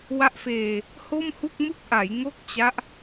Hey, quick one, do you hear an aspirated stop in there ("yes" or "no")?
no